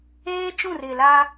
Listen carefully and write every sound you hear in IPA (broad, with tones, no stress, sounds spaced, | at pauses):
eː˦ t͡ʃ ũ˦˨ r ɪ˨ l a˦